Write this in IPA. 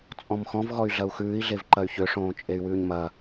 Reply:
t͡sʼɔ̃mxɔ̃v ɣɔy̯ɮɐu̯xʉːi̯ ɮevǃɐy̯çø ʂõːt͡ʃʼey̯wʉːɲmɐ

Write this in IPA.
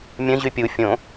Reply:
mʲə̃ ʑypʲu fʲõ

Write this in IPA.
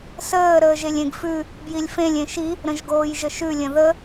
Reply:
səː ɾəːʒelʲẽɡfʉ | bjilʲfẽlʲ ẽʃi | ɾə̃ʒɡoːjʒəʃʉ lʲə̃ðə

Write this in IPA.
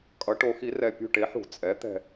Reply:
kʼʌ˩˧ʈo˩˧xi˩˧rɛ˨˩ pʲṳ˦˨ʈe˩˥ħṳ˧˩˧ t͡sʼɛ˩˥t̪ɛ̤˦˨

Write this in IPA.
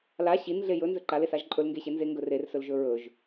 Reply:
la ɕin ɮejɵ nzɵǃales aʒǃʼɵl ŋɡeɕenze ŋɡɵrersɵl ʒɵɹɵʒ

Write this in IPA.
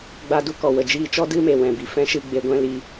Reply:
ɡ͡ba˧du˦ kɔ˨ wə˨d͡ʒiː˧t͡ʃɔ˦ dɨ˦me˨ wɛ̃˨bi˨fɛ̃˦ʃɨ˧ ɡ͡be˧ɡʷɛ̃˦ liː˧

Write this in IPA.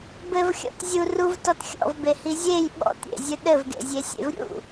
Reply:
bɘvxʲɔ̰t zʲu ruvtɔt xʲɔ̰vbehi zʲej ɓɔ̰tɾʲḛzʲɨ ɗɘvɡḛzʲesʲḛv ɾʲṵ

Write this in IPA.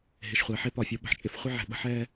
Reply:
ɦɪ˨ʃχʷɛ˨ħɪ˦ pɒ˨fʲo˦ɓə̤˨ħt͡ʃʼɪ˦f χʷɪ˦ʕɛ̤˨ɓə̤˦ħɛ˦

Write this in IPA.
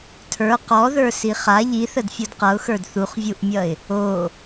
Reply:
tʰə˞ qɔðə˞ siχa ʎiθəd fʲodqʌʊ̯xə˞d θuχvʲuʔmʲʌɪ̯ | o

